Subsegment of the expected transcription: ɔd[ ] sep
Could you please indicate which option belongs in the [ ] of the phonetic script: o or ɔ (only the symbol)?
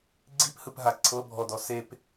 ɔ